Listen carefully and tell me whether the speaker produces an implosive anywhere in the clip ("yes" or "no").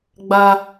no